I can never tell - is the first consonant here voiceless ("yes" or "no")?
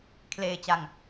yes